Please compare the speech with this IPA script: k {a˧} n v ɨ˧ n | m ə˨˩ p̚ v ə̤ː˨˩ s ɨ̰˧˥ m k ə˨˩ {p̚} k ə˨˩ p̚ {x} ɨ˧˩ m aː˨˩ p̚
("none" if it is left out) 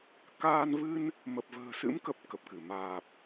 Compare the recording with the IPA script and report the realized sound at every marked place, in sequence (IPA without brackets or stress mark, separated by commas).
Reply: aː˧, p̚, k